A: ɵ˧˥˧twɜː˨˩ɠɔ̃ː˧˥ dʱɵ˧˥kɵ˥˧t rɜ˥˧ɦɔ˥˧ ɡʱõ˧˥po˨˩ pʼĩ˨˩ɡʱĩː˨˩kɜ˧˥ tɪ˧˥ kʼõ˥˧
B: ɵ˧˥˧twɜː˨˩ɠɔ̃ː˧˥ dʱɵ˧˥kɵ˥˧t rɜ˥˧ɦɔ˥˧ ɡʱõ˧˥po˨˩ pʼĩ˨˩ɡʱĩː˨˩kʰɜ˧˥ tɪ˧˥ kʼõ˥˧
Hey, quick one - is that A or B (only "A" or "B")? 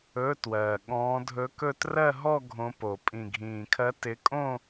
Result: B